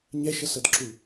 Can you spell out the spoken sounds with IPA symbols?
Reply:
ɲ ɛ ʃ ʌ s ʌ d ǁ u

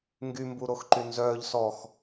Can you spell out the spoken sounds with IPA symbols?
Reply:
ŋ ɡ y m b u ɾ o x ǃ y n z œː ʎ s ɔ x

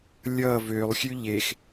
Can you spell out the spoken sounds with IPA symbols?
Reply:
lʲ ʌ v ø lˠ xʲ ʉ ʎ e x

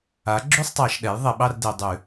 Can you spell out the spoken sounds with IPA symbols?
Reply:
a˩˥ ɡ͡ǁ ʉ˥˨ sˤ tˤ ɑ˨˩˦ ʃ ɗ ɛ˩˥ j ðˤ e˨ ɓ ɑ˥˨ r d e˨ dˤ ʉ˨˩˦

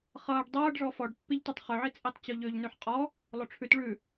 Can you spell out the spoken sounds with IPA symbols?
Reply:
χ ʌː ɖ dˤ ʌː ɖ ʐ ɔ f ɔ ɖ pː i ʎ t ø tˤ χ ø ʕ i t͡sʼ i tˤ t͡ɕ o ʎ ø ʎ n ʉ ħ qʼ ɔ | lˠ o ʈ͡ʂʰ ʉ t ɭ ʉ

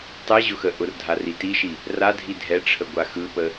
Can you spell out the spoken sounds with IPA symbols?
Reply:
tˤ ɛ ʑ ʊ x ə ʔ ʊ r dʱ a r i t i ʃ i | r a dʱ i dʱ ɛ ʈ͡ʂʰ ə ɡʷ a x ɯ p ə

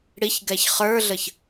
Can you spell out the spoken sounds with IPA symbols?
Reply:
ɽ i ç ɡ ɛ ç χ ə˞ ɮ ə ç

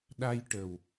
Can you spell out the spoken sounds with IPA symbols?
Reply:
ɗ a˧ j ʈ ə˨˩ w

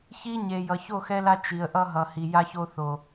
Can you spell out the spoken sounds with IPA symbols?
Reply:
ç i˦ ɲ e˨ j ʌ˨ ç o˦˨ x ɛ˦ l a˦ t͡ʃ i˨ ə̯ ʔ ʌ˦ ɦ ʌ˨ h i˨ j a˦ ç o˦ θ o˨

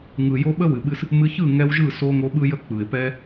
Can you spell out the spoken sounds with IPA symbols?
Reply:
ŋ ɯ˨ j o˧ ɓ ə˦ w ɨ˨ ɓ ɨ˧ s | m ɨ˧ ç ɯ˦˨ ŋ ɛ˧ w ʒ ɯ˦˨ s o˧ ŋ o˧ ɓ ɯ˦ j ə˦ k͡p ɯ˨ ɪ̯ p ɛ˦

